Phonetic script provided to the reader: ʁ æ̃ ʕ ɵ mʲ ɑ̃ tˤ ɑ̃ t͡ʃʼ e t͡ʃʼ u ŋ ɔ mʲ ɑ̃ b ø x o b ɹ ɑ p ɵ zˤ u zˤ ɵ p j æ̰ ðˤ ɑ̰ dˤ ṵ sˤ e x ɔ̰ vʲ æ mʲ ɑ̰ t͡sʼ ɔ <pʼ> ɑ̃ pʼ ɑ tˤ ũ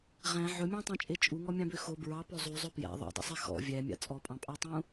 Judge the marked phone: correct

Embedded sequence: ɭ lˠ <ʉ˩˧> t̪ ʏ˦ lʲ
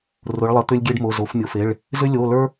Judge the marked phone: incorrect: ə˩˧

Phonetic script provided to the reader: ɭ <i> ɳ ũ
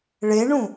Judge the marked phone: incorrect: e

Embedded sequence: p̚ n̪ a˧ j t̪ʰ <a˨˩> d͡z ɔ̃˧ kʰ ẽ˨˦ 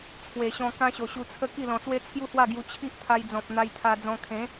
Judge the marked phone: incorrect: a˧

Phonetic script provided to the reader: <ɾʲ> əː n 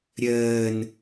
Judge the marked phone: correct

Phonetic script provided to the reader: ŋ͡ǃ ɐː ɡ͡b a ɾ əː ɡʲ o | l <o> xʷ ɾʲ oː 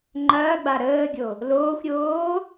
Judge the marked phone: incorrect: oː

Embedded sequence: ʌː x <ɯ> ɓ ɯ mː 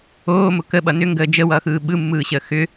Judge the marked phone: incorrect: ɯː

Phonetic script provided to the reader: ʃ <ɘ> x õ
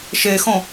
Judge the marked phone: incorrect: e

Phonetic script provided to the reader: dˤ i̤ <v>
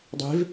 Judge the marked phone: correct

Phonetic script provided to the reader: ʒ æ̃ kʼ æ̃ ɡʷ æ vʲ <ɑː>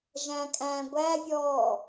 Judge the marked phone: incorrect: ɔː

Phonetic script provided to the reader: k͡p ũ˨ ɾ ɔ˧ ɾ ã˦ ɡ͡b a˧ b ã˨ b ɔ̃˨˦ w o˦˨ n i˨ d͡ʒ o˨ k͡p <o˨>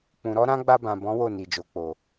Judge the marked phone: correct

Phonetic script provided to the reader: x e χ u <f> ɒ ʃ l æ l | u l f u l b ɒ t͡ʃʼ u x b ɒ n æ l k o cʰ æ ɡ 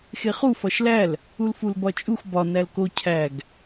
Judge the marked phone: correct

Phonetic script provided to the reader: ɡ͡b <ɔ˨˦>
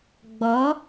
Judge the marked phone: correct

